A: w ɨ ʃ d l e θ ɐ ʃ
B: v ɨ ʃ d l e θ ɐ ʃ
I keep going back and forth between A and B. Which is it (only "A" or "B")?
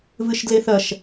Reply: B